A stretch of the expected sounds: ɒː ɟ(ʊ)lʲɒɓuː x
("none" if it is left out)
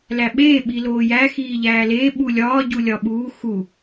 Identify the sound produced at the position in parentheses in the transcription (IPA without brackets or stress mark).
u